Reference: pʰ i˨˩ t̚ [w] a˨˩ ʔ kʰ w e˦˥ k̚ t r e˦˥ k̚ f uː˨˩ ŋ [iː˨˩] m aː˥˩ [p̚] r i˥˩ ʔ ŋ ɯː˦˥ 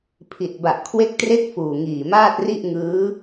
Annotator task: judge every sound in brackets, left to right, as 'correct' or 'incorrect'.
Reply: incorrect, correct, incorrect

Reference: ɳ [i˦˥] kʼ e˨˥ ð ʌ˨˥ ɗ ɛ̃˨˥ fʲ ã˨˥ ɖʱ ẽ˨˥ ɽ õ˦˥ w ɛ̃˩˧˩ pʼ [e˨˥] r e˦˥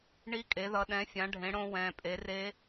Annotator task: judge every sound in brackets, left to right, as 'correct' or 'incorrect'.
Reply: correct, correct

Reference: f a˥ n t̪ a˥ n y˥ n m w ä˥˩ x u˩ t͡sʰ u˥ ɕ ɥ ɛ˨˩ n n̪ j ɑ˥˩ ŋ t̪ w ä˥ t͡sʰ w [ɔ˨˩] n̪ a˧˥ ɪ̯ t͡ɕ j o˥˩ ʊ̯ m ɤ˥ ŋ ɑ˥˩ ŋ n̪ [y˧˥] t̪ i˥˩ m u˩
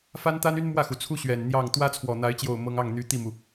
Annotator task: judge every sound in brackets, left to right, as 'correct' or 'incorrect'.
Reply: correct, correct

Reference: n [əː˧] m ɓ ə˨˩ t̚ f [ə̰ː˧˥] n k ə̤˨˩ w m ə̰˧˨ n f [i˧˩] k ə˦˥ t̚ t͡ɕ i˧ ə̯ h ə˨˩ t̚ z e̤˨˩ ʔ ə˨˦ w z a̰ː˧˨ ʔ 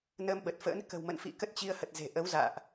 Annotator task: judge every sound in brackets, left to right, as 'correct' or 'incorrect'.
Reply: correct, correct, incorrect

